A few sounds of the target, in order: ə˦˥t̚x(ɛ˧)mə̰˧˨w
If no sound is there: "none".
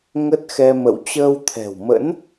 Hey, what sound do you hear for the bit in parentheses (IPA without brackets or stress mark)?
ɛ˧